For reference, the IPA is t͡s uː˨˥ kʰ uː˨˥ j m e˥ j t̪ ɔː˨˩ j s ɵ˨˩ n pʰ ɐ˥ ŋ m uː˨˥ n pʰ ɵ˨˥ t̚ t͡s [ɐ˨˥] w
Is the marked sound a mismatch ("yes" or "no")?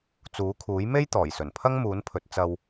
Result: yes